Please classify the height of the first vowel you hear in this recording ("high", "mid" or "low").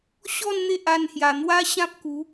mid